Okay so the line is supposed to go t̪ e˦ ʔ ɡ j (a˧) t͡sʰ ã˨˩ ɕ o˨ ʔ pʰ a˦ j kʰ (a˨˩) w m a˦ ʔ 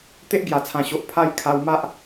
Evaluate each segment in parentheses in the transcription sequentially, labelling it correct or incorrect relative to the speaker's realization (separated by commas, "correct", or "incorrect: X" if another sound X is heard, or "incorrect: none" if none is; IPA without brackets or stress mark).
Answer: incorrect: a˨˩, incorrect: a˧